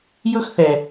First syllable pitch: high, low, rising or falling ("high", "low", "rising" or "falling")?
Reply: high